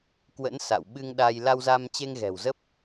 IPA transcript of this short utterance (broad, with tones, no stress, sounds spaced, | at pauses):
k w ə̰˧˥ n s a̰˧˨ w ɓ ɨ˧ ŋ ɗ a˧ j l a˧ w z a˧ m t͡ɕ e˧ ŋ ɣ ɛ̤˨˩ w z ə˦˥ p̚